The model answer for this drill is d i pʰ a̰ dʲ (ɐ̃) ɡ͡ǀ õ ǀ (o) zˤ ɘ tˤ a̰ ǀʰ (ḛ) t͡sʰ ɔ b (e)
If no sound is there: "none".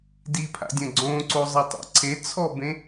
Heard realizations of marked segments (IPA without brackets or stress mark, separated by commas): ɐ̃, o, e, ẽ